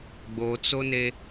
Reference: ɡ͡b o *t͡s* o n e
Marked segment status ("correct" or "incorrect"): correct